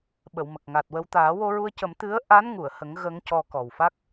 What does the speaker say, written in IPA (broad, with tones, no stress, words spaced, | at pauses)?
ɓə˨˩˨wmə˨˩k̚ ŋa˨˩t̚wə˧w t̪aː˨˩˦wo˧ɹu˧ə̯cə˨˩˦m t̪ɨ˧˥ə̯ʔa˧˥nŋu˨˩˨ə̯hə˨˩˦ŋ ɣə˧˥ŋcɔ˧ kɔ˨˩wfa˦˥k̚